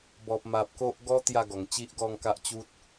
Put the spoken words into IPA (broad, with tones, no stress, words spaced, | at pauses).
bɔ˨p̚ ma˨p̚ko˦ʔ ɡɔ˦ t̪ja˥˧ɡɔ˨˩ŋt͡ɕi˦ʔ ɡɔ˥˧ŋka˦ʔt͡ɕu˦t̚